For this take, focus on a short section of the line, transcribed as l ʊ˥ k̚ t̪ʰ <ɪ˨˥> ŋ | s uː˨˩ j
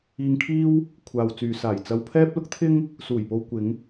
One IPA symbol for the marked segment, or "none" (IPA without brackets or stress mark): ɪ˥